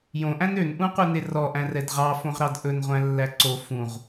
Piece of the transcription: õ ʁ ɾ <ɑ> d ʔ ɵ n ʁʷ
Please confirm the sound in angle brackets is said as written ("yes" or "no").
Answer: yes